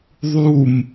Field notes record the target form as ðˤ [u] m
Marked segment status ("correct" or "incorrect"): correct